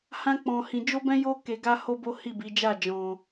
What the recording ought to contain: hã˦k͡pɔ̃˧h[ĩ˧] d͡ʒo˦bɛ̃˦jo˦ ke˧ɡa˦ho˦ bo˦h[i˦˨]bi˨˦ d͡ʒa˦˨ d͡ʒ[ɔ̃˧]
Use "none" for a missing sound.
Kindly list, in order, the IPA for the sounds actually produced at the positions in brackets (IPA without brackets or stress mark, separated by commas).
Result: ĩ˧, i˦˨, ɔ̃˧